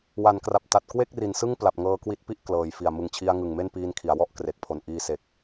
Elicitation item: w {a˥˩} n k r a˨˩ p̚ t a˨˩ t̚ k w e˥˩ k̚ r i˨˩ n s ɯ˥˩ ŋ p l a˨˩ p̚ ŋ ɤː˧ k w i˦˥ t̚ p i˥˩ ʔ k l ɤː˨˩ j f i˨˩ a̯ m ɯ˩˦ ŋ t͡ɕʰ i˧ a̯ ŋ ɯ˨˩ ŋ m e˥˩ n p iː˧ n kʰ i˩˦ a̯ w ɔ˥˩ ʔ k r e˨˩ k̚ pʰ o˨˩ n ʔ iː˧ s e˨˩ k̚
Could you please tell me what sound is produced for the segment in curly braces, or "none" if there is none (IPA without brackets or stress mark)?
a˩˦